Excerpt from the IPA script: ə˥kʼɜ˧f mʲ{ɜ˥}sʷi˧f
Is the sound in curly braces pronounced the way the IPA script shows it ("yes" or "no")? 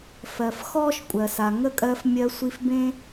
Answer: no